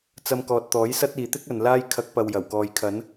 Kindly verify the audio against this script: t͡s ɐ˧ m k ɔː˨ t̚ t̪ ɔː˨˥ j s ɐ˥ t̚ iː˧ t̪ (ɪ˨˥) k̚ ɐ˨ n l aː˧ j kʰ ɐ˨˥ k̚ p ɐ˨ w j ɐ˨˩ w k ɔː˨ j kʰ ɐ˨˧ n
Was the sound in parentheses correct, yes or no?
no